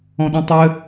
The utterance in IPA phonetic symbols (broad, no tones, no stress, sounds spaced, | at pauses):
ɔ̃ ɗ ĩ tˤ ɘ